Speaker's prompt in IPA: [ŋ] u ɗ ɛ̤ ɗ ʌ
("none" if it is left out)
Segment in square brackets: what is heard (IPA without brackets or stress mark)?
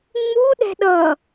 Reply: ŋ͡m